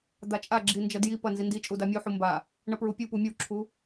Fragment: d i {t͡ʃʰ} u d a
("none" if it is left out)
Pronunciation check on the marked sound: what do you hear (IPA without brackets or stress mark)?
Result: t͡ʃʼ